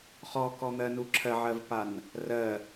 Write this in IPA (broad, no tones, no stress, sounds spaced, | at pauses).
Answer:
χ ɔ k ɔ n̪ ɜ n u ǁʰ ɜ ʕ ɜ v p a n | r ɜ